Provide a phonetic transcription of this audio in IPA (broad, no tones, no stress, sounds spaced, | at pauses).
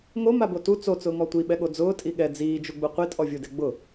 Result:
ŋ o m a b o t u t͡s o t͡s ʊː ŋ ɔ tʷ i ɓ ɛ ɠ o d͡z ʊː tʼ i ɠ ɛ d͡z iː d͡ʒ u ɡ͡b u qʷ i tʼ ɔ vʲ u d e ɡ͡b ʊ